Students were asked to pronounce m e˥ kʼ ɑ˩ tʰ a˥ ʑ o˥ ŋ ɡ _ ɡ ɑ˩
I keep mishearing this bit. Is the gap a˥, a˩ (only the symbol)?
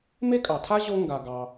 a˩